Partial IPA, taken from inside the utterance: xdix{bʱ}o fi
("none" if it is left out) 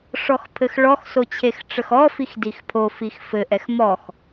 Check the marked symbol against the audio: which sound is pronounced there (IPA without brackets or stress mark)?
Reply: pʰ